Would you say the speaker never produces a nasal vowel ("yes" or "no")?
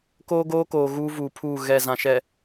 no